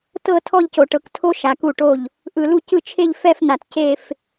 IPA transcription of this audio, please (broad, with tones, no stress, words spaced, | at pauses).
tɤ˥˧ tʰɔ˥˧ʎco˨ʈɤ˨ktʰo˦˥ ʃa˨ku˥˩ʈo˥˩ʎ | ʔɯ˨lu˥˩ cɯ˥˩t͡ʃʰe˥˧ʎ fɛ˥˧fn̪a˨t ce˥˧f